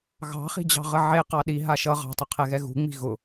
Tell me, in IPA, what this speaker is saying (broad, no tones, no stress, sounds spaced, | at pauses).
ɣ ɑ̤ χ i̤ d͡ʑ ɑ̤ ʁ ə ʕ e q ɑ ɗ i ɦ a ʃ ʌ ʁ ɑ̤ tˤ ə qʰ ɛ ɣ ɛ ɣ ṳ ŋ͡m i̤ ɣ ʊ